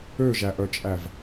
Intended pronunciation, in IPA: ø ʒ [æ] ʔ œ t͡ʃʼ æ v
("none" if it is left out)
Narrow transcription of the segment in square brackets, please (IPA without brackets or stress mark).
æ